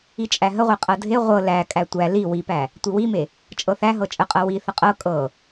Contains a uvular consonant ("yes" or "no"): yes